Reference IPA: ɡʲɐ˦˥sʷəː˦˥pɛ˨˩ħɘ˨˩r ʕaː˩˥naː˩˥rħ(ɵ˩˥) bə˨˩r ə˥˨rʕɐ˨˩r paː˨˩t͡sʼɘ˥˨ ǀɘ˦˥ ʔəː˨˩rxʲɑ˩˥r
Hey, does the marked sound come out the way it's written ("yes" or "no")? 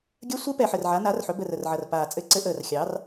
yes